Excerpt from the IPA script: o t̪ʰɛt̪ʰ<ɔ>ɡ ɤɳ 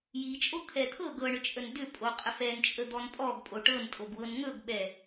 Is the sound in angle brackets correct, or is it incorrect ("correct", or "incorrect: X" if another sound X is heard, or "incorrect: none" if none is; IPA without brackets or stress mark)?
incorrect: ɤ